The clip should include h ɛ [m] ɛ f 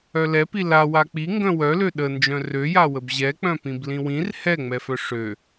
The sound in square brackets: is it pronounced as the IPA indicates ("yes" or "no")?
no